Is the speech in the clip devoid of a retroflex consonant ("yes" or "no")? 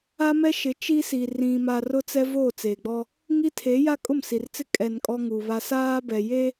yes